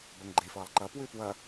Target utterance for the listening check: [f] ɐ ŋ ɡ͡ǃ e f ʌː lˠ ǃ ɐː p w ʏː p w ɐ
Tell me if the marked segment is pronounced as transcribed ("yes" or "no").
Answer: no